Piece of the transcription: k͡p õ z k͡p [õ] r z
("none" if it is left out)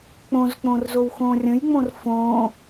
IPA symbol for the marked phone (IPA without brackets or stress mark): õ